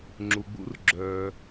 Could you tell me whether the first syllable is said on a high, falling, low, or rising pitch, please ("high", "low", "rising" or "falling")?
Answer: low